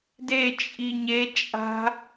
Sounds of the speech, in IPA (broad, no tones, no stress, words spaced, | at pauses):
de t͡ʃʼiɲe t͡ʃʼa̤